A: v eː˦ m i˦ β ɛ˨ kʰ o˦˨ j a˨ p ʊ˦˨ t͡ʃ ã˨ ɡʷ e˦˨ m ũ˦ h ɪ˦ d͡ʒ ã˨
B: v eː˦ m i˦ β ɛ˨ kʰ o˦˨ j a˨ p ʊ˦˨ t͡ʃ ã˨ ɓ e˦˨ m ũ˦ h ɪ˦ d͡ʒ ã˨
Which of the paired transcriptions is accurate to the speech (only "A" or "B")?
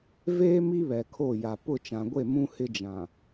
A